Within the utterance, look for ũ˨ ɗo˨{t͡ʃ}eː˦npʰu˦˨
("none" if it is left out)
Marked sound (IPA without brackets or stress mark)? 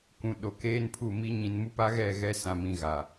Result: k